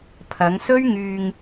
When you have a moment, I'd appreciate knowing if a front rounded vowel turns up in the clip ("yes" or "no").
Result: yes